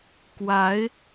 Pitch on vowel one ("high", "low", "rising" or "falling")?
rising